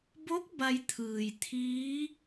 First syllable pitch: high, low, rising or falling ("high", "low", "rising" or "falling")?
rising